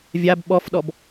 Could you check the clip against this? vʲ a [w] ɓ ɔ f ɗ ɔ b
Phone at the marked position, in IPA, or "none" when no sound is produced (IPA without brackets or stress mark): b